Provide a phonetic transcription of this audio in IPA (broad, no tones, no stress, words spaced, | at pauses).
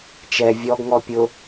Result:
t͡ʃɛ vʲɔɡŋɔ pʲʊ